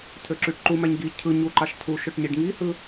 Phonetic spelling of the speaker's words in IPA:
tʰ ø ǁ y ʈ ǃ u m æ ɲ ɡ i cʰ ɯ ɲ u ǃ ɑ ʃ tʰ u ʃ ø ʈ ɲ i ɖ ŋ i h ɯ

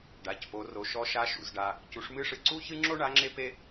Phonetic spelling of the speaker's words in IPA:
ɖ a˩˧ c p o˩˧ r o˩˧ ʃ ɔ˧˥ ʃ a˧˥ ʃ ṵ˩˧ z ɖ a˧ | c u˩˧ ʂ m ɨ˧˥ ʂ ɨ˩ ǀ u˥ ç ɨ˥ ŋ͡ǁ o˥ ɳ a˧˥ ŋ͡ǁ e˥ p e˥

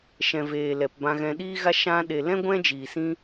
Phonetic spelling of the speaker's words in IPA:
ʃ ɛ̃˨ v eː˨ l ɛ˨ p b ã˧ ɣ ɛ̃˧ ɗ iː˦ ɣ a˦ ʃ ã˧ ɗ e˨ l ɛ̃˦ ɡʷ ɛ̃˦ d͡ʒ iː˨ s ĩ˦

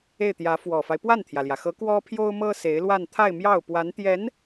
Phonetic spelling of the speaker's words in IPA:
e˥˩ ɪ̯ t̪ j ä˧˥ f w ɔ˨˩ f a˦ ɪ̯ p w a˥˩ n t̪ʰ j ä˩ l j ä˩ x ɤ˧˥ k w ɔ˥ pʰ j o˥ ʊ̯ m ɤ˥ s e˧˥ ɪ̯ l w a˥˧ n t̪ʰ a˥˧ ɪ̯ m j ɑ˥˩ ʊ̯ p w a˧˥ n t̪ j ɛ˧˥ n

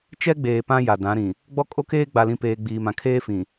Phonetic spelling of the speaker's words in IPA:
t͡ʃ ɛ˦ ɡ͡b eː˨ p ã˦ j a˨ d ã˨˦ ɾ ĩ˨ | ɡ͡b ɔ˦ kʼ o˦ k eː˦ ɡ͡b a˨ l ĩ˨ p eː˨ ɡ͡b iː˨ m ã˨ kʰ eː˦ f ĩ˨

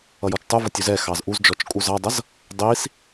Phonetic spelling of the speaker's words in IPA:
ʌ j ɔ t͡ʃ tˤ u v ʌ tʲ u z ɛ x ɑ z ʔ u z d͡ʒ ɔ t͡ʃ kʼ u z ɑ dˤ ʌ z | dˤ i s

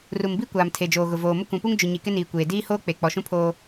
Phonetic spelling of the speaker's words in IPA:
r u˨ m b i˦ kʷ aː˨ m tʰ e˨ d͡ʒ oː˨ ɣ ʊ˨ v oː˨ m ʊ˦ kʷ ũ˨ p u˦ ŋ d͡ʒ ʊ˨ ɲ i˨ k ɪ˦ n iː˨ kʷ eː˨ d iː˦ h oː˦ k͡p e˨ k͡p ɔ˨ ʃ ũ˦ pʰ oː˦

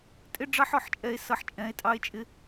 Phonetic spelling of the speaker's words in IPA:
tʼ ɪ˦ ɖ͡ʐ ɑ˦ ħ ɔ˨ ħ t͡ʃʼ ɛ˧ e̯ s ʌ˧ ħ t͡ʃʼ ɛ̃˨˦ e̯ tʼ ɑ˦ e̯ t͡ʃʼ ɪ˦

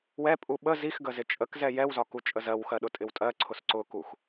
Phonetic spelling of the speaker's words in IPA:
w ɛ pʼ u ɓ ə z i x ɡ ə z ɪ t͡ʃʼ ə k z ɛ j ɛ w z ɒ k u t͡ʃʼ ə z ɜ w x ɜ ɗ ʊ tʼ ɪ w tʼ ɜ ǀʰ ʊ s ǀ ʊ k u x

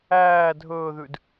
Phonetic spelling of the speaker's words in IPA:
æː dʱ ɵː ð ʉ d

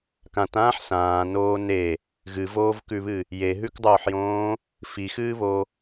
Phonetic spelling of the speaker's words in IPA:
k ã t ãː ħ s ãː n oː n e | ɣ ɨ v oː v k ʉ β ɨ | j e ɦ ʉ k dˤ oː ħ j õː | f i x ɨː β o

